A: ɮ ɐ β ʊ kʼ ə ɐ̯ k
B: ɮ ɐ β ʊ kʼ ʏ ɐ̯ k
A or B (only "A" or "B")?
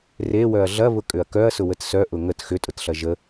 B